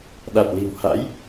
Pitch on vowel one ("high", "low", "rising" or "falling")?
low